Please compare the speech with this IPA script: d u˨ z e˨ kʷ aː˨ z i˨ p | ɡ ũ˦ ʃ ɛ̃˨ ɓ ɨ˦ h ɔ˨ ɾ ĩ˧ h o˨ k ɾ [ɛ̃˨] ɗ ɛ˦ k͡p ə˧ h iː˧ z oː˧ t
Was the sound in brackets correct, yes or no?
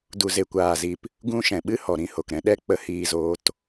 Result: no